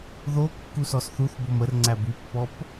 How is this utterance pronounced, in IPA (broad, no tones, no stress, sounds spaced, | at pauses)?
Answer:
ð o kː u s ɔ s θ u θ b o m ə r ŋ͡ǀ æ b y pː ɔ p